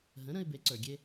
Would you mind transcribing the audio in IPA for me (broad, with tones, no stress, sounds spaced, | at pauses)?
ɦ ə̃˩˥ ɾ ə̃˧ ɪ̯ b e˩˥ ǀ ə˞˩ ɡʲ e˥